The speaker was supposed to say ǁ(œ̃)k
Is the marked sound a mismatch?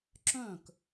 no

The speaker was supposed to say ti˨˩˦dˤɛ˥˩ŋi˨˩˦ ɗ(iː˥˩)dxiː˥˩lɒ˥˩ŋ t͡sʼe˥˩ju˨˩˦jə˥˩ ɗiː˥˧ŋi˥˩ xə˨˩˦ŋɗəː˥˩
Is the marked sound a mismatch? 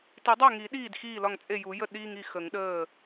no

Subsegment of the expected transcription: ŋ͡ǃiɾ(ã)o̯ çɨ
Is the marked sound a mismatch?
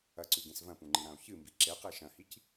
no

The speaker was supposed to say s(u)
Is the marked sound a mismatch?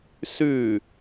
yes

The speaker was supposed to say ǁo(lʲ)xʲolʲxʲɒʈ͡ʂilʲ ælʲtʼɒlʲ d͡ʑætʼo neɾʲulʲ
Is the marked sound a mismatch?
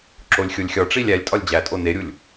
no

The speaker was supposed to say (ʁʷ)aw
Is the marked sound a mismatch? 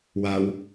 yes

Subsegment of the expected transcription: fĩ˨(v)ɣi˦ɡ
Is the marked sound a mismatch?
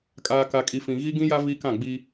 yes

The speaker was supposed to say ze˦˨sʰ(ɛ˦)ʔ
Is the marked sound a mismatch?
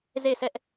no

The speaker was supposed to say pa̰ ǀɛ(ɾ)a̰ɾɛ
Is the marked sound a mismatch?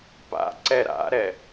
no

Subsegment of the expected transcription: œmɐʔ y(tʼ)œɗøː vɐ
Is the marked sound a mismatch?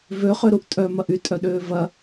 no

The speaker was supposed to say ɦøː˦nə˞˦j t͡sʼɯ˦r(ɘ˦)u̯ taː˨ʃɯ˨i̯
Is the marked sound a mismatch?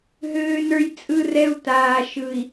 yes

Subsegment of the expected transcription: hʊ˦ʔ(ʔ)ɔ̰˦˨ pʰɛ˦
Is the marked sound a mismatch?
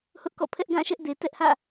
yes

